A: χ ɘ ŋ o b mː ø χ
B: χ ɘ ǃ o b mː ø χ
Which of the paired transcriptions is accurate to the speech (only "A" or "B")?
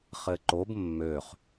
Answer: B